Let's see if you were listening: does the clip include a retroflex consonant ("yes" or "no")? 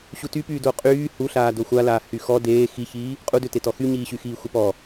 no